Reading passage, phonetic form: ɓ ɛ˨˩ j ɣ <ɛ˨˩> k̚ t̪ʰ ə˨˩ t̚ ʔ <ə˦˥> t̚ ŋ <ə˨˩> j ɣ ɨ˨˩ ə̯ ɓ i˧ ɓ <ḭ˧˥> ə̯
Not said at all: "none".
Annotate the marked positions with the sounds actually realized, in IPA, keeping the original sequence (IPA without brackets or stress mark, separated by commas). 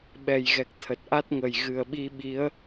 ɛ˨˩, a˦˥, ə˨˩, i˨˦